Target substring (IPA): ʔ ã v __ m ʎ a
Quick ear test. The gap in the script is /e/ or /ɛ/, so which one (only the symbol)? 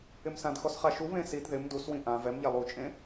ɛ